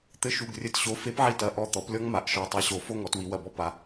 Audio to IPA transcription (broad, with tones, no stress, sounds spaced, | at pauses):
t̪ ɘ˨˥ ʃ u˩˧˩ ɡ rʲ ɘ˧˩ t ɕ o˨˥ f e˨˥ p ʕ i˧˩ t ɐ˩˧˩ ʔ ɔ˧˩ t̪ ɔ˩˧ p lʲ ɔ˦ ŋ m a˩˧ ʔ ʃ ɔ˩˧˩ tˤ a˨˥ ɕ o˩˧ f o˦ ŋ ɔ˩˧ t w i˩˧ w ɐ˧˩ b ɔ˦ p a˩˧